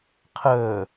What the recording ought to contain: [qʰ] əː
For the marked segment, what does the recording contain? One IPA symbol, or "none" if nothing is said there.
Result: qʰ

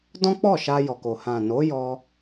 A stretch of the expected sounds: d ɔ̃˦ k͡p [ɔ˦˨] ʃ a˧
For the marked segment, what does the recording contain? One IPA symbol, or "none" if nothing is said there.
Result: ɔ˦˨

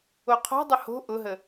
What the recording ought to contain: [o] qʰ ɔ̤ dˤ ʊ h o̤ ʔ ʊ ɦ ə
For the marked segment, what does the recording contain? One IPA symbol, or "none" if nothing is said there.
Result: o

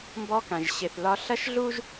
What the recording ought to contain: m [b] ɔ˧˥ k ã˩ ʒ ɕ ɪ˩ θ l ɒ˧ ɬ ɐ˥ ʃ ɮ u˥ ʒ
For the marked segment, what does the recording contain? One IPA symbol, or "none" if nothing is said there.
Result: b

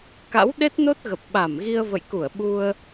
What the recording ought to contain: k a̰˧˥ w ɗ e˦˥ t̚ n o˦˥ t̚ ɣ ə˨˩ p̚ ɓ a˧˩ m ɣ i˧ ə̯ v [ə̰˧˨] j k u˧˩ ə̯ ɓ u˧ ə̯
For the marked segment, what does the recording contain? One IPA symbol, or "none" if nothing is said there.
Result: ə̰˧˨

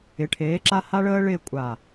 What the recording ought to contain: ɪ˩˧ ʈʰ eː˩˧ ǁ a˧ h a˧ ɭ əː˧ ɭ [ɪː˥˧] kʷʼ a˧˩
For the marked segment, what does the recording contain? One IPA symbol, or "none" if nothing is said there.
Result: ɪː˥˧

